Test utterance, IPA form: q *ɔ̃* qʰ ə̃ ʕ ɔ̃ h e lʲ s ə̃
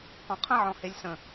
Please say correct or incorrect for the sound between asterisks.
correct